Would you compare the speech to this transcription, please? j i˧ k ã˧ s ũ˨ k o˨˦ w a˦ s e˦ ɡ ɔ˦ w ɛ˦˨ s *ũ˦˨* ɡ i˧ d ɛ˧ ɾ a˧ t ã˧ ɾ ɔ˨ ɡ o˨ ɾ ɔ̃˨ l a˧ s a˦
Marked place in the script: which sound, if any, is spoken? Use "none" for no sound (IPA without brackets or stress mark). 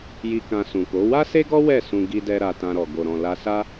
ũ˧